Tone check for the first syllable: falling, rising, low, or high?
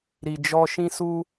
low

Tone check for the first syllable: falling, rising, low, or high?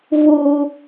high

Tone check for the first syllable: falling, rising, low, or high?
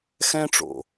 high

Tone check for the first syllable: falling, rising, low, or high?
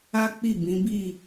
high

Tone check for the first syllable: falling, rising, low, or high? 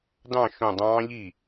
falling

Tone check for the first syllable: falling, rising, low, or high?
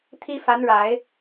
high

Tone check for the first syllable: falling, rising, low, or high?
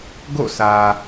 falling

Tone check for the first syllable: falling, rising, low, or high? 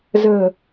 low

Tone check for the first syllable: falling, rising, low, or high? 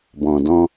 low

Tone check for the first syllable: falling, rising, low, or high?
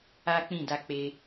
high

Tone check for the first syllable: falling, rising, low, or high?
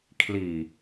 low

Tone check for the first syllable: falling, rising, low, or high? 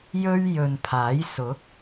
high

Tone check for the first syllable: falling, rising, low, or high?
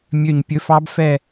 falling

